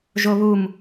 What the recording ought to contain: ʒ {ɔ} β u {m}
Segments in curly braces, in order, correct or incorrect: incorrect: o, correct

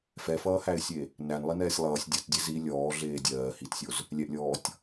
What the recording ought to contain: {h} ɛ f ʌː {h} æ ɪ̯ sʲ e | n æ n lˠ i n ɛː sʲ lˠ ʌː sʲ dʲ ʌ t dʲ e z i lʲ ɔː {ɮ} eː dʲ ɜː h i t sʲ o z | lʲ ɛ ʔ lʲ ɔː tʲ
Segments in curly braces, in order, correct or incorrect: incorrect: f, correct, correct

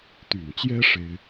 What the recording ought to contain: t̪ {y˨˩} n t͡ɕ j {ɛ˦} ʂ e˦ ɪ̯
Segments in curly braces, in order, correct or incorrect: correct, correct

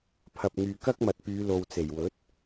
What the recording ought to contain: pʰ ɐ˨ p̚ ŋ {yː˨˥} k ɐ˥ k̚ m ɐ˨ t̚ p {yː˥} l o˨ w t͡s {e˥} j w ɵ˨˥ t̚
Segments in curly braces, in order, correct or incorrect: incorrect: yː˨, incorrect: yː˨˧, incorrect: e˨˩

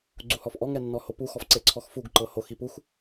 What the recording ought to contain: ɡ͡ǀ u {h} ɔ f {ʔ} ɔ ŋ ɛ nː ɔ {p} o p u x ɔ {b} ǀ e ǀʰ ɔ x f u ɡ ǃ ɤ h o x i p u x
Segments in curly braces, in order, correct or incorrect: correct, correct, incorrect: h, incorrect: f

